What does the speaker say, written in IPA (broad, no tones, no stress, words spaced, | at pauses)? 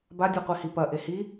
ba dʲuqʷihipɐ ʔehi